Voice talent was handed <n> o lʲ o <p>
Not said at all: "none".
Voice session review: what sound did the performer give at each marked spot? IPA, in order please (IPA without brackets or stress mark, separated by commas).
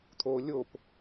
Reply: t̪ʰ, p